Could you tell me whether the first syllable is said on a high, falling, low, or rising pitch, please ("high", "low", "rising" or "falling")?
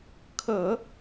low